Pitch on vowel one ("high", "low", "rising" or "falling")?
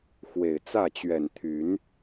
low